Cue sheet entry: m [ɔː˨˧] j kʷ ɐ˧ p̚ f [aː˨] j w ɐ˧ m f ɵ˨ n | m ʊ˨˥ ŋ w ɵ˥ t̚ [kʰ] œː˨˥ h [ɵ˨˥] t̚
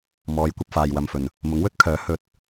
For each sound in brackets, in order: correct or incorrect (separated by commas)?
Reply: correct, correct, correct, incorrect